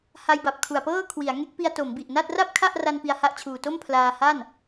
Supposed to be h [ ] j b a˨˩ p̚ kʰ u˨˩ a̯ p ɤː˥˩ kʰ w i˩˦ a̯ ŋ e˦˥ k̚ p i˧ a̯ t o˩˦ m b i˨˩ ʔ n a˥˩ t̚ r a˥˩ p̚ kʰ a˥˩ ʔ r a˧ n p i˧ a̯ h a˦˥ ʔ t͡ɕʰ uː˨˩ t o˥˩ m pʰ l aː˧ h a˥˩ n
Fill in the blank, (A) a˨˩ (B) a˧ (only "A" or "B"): B